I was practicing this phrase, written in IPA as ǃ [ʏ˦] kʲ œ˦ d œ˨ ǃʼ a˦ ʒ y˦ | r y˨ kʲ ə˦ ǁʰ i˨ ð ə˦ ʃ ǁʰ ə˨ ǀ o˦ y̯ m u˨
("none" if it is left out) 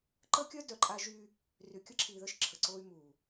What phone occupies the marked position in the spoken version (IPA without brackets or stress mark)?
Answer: ə˦